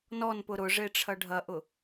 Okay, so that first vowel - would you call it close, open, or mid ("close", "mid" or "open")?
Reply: mid